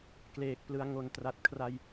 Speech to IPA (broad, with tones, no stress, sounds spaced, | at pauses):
k l eː˨˩ k̚ p l ɯ˧ a̯ ŋ o˨˩ n t r a˨˩ t̚ kʰ r a˧ j